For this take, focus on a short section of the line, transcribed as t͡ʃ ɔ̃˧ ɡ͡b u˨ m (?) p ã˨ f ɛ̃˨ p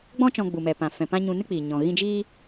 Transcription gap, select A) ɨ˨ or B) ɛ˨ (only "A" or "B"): B